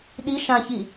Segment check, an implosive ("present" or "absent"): present